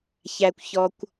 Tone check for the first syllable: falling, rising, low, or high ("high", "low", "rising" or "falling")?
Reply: high